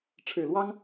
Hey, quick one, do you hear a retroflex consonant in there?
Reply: yes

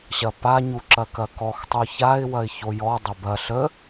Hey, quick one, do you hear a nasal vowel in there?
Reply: no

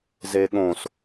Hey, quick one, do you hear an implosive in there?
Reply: yes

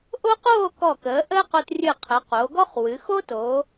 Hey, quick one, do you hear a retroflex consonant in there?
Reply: no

